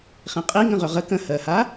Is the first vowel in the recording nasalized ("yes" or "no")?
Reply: yes